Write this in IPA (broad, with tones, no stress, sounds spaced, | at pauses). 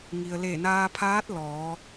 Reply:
ŋ i˩ ə̯ l e˧˩ n aː˧ pʰ aː˧˥ t̚ l ɔː˩˧